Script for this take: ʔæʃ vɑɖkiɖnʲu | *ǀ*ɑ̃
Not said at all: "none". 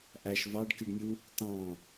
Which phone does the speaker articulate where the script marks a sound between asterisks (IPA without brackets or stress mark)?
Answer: t